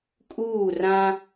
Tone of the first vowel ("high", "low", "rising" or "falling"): falling